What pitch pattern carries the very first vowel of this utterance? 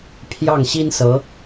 falling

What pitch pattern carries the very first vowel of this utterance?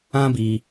high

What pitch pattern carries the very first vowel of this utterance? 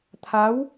rising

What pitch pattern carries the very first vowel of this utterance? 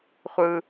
high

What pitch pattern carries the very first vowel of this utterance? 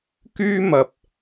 high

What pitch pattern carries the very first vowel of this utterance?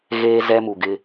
high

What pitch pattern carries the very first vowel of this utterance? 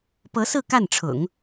rising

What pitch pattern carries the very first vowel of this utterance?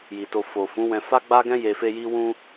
low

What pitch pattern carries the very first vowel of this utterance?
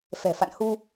low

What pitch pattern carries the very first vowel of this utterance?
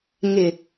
low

